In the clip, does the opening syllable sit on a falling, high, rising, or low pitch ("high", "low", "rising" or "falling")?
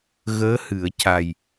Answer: rising